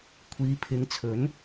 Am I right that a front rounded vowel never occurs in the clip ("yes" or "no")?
yes